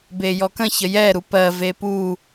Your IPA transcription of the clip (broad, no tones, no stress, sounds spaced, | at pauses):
b e j ɔ k ə̃ ç ə j ɛ ɾ u p ɜ v e p u